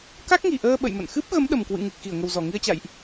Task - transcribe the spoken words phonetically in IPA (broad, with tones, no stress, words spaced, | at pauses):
ka˦˥k̚ŋi˨˩ʔəː˧ ɓə̰˧˨jmə̰˧˨n xɨ˦˥p̚ɣə˨˦m ɗə˨˩mkwɨ̰˧˨ŋɨ˨˩k̚ xi˧˩ə̯ŋə˨˩wzɔ˧˩ ŋi˧ə̯t͡ɕa̰˧˨jʔ